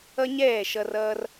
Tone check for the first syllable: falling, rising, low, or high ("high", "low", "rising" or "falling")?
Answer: high